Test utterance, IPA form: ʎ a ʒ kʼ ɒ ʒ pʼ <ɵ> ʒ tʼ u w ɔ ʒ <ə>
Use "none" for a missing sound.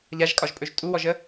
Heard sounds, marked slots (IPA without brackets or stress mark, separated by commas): ɵ, ə